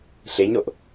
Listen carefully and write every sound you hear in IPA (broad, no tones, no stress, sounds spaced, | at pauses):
ɬ e ɲ ɾ o ʔ